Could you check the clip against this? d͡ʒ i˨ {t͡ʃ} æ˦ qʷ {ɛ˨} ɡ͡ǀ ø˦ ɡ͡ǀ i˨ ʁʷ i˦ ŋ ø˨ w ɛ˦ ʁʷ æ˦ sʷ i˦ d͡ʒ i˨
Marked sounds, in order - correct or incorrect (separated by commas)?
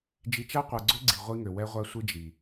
correct, correct